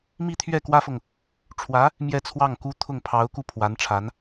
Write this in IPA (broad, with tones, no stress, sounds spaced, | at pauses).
m i˥˧ t̪ʰ ɥ ɛ˥˩ k w ä˥ f ɤ˨ ŋ | ʈ͡ʂʰ w ä˧˥ | m j ɛ˥˧ t͡sʰ w ɑ˥˩ ŋ k u˥ t̪ʰ ʊ˥˩ ŋ pʰ ɑ˧˥ ʊ̯ k u˥˩ pʰ w a˧˥ n ʈ͡ʂʰ a˧˥ n